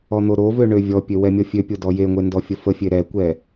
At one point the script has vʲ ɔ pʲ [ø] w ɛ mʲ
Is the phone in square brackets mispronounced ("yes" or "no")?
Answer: no